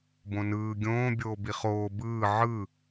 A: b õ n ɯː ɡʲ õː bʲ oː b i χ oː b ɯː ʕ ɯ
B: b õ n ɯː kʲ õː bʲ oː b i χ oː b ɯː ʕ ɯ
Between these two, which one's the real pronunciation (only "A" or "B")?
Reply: A